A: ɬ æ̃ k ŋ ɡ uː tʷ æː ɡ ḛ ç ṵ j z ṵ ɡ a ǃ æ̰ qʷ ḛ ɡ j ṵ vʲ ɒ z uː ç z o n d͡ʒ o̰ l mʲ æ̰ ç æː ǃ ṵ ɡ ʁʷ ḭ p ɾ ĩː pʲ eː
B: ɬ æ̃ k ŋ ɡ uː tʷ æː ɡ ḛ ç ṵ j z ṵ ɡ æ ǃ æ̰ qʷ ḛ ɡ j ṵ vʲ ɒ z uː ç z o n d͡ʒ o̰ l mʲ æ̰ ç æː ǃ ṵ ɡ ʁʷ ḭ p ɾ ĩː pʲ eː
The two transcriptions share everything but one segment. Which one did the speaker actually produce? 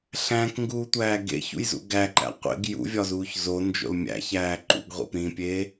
B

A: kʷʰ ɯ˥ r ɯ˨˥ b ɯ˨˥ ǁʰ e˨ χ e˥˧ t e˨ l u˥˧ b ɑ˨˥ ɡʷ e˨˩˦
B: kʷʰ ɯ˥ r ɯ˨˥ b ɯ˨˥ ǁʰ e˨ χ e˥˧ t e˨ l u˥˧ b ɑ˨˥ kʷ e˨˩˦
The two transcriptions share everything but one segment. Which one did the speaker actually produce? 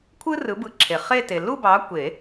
B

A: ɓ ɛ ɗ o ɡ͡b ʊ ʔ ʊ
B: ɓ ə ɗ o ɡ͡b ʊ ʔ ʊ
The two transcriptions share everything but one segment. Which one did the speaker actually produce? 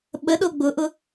B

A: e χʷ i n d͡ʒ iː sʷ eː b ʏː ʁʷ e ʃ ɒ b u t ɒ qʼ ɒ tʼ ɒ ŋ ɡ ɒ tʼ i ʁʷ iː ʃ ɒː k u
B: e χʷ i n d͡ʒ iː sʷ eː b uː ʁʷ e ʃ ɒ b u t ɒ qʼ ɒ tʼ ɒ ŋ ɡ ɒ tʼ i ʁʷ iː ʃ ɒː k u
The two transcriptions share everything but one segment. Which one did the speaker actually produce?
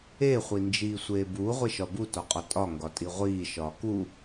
B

